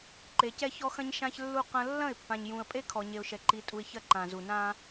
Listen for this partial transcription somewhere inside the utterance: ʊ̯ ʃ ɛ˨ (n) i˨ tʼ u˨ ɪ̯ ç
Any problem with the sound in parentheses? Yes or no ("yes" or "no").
yes